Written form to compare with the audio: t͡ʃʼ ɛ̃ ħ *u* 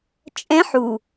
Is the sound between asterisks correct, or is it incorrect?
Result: correct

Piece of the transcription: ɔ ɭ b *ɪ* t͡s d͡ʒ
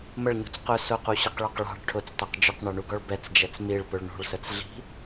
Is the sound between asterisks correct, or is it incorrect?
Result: incorrect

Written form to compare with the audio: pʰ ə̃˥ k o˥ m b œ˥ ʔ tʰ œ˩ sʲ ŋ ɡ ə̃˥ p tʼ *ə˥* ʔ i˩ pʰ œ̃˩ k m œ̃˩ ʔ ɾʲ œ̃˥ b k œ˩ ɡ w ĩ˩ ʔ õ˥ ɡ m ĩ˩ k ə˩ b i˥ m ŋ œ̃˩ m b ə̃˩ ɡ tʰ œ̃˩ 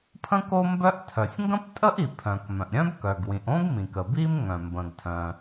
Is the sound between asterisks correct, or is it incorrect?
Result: correct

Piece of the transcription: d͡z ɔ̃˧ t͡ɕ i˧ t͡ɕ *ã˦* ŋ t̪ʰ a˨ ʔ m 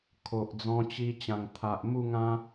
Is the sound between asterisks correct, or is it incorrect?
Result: incorrect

